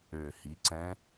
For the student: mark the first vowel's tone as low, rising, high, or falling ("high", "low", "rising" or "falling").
low